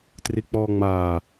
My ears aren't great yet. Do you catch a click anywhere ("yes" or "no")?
no